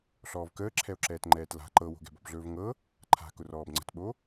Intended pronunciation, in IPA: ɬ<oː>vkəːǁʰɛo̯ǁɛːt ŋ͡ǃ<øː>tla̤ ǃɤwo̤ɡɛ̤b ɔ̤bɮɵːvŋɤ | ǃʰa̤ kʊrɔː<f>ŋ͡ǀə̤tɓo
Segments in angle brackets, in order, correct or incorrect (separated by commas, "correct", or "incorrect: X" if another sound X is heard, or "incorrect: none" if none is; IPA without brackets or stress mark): incorrect: ɔː, incorrect: ɛː, incorrect: b